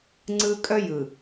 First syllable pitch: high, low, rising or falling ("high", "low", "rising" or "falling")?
high